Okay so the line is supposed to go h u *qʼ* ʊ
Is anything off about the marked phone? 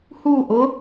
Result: yes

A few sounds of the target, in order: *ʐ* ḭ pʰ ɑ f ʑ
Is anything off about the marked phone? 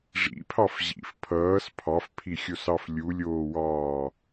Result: no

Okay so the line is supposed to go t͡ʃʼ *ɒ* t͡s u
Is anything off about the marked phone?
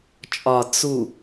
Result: no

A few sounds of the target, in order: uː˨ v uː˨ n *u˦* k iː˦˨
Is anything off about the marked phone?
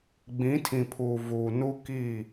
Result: no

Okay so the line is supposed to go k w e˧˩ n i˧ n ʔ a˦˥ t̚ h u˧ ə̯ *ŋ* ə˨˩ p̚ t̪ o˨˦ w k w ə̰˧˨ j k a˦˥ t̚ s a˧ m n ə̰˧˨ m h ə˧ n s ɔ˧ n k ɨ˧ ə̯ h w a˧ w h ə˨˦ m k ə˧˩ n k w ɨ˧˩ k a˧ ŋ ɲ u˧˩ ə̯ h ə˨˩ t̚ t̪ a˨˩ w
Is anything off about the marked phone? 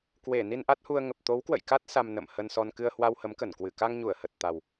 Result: no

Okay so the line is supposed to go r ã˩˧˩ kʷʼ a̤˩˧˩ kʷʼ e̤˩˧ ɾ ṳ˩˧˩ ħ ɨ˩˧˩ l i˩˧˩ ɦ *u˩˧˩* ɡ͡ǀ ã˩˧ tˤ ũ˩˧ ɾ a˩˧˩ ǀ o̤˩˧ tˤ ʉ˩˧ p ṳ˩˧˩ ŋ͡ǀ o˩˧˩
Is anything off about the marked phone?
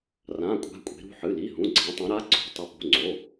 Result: yes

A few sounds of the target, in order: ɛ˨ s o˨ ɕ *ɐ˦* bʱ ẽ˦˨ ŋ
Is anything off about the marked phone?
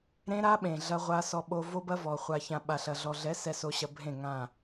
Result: yes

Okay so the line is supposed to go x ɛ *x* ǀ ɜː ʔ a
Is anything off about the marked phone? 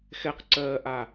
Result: yes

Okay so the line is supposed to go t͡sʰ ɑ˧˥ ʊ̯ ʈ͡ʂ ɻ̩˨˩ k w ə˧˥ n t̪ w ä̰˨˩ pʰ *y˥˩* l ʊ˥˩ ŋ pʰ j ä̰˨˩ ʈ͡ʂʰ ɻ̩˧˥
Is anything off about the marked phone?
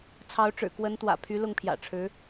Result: yes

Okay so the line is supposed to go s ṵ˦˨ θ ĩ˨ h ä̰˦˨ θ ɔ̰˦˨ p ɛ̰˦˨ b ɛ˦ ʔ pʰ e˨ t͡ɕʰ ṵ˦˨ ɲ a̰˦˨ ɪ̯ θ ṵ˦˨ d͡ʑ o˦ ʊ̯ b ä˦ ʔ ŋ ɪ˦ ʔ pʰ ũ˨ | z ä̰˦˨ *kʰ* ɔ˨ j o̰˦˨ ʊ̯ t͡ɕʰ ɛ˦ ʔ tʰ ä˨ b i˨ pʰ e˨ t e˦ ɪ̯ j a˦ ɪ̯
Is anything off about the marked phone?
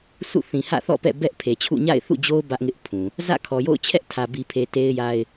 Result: no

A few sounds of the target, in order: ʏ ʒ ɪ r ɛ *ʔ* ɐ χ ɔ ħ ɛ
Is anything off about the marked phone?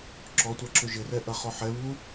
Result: no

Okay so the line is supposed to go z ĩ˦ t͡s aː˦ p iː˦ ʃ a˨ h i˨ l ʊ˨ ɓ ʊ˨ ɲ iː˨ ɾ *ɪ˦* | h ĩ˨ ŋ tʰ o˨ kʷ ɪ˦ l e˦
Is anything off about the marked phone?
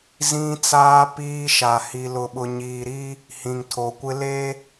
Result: yes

